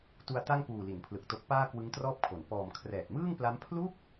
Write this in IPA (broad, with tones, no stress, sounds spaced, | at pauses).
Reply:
t u˧ a̯ t a˥˩ ŋ p uː˨˩ l i˩˦ n pʰ l ɯ˨˩ k̚ t o˦˥ k̚ p aː˥˩ k w ɯ˦˥ ŋ t r ɔː˥˩ p̚ kʰ o˩˦ n p ɔː˨˩ m kʰ r ɛː˨˩ t̚ m ɯː˥˩ ŋ p l a˦˥ m pʰ l u˥˩ k̚